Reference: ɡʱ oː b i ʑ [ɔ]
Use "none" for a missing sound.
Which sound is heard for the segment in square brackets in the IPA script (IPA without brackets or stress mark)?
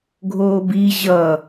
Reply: ʌ